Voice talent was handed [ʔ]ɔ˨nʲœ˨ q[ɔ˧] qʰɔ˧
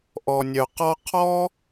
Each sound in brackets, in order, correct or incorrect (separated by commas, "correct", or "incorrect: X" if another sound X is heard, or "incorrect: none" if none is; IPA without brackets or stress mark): correct, correct